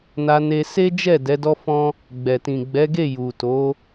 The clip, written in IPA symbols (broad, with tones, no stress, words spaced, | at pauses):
na˧ne˧ se˦d͡ʒɛ˦˨ dɛ˨˦dɔ˦ fɔ̃˦ | ɡ͡bɛ˨tĩ˨ ɡ͡bɛ˨˦ɡe˦˨ ju˨to˨˦